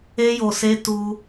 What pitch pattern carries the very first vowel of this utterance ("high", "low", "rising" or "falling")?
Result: high